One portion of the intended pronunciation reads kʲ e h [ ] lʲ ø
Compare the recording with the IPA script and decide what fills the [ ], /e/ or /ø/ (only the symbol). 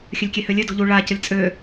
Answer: ø